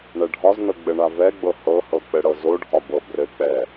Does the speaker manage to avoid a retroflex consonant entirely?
no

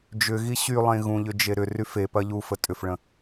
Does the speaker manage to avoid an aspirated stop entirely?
yes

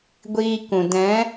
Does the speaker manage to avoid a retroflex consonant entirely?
yes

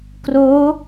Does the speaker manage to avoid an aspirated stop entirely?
yes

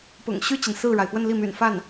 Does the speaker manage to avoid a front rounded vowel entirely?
no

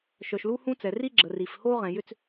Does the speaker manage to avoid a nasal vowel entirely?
no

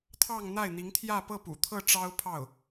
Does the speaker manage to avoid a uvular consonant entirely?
yes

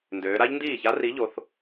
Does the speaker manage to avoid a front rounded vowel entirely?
no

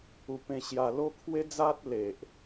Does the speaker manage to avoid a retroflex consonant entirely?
yes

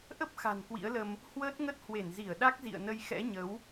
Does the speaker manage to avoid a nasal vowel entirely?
yes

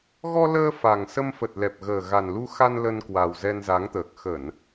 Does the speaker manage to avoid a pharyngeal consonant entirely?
yes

